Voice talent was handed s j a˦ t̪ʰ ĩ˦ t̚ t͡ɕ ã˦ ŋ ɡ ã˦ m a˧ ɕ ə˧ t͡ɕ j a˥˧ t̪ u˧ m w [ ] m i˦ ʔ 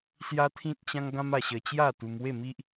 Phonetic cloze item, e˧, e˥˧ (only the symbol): e˥˧